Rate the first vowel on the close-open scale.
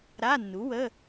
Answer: open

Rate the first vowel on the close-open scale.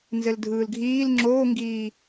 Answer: mid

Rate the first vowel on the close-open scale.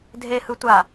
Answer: mid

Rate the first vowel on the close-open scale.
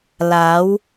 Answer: open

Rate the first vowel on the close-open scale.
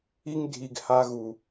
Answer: close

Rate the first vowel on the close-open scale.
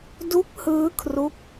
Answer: close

